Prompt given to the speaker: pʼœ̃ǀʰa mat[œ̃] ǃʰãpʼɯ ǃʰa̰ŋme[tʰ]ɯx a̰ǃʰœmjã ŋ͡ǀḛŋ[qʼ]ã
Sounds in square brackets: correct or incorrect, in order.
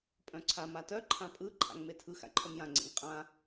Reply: incorrect, correct, correct

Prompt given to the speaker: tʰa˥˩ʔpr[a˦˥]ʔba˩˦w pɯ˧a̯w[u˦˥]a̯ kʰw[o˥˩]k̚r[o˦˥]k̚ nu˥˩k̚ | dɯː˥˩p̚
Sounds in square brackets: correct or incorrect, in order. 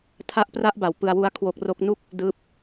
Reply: incorrect, correct, incorrect, correct

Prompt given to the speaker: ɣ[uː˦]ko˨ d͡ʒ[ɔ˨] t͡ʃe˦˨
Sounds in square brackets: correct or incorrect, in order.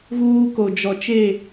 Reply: correct, correct

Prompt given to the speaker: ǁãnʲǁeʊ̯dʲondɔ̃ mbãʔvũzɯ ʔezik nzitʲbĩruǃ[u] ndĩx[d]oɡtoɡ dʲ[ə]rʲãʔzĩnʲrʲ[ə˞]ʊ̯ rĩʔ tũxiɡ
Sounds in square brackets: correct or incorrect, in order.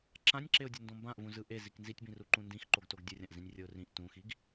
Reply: incorrect, incorrect, incorrect, incorrect

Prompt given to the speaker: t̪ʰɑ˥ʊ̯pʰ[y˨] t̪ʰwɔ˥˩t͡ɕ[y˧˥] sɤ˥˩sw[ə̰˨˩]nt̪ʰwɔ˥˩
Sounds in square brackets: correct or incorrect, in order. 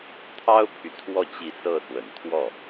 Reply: correct, incorrect, correct

